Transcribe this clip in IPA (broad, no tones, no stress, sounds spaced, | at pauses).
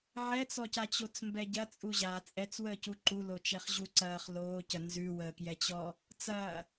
ʕ ɛ t͡s ɔ c a t͡ɕ o t͡s m b ɛ ɟ ɐ t͡sʼ u ʑ a t͡sʼ ɛ t͡s w əː c u ǃ u l o t͡ʃ ɛ χ ʑ u ǀ ɐː χ l oː c ə n z ʉ w əː k j ɛ t͡ɕ ɔ | t͡s ɐː